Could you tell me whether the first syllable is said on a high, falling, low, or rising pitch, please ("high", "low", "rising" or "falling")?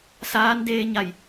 rising